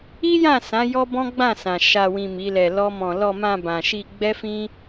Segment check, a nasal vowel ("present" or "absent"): present